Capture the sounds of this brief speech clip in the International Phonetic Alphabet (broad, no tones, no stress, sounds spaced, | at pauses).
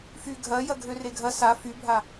f y ɡʱ ɐ j ɐ ɡʱ ø r e ɡʱ ɐ s a f y bʱ a